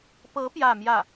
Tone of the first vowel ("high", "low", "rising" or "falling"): rising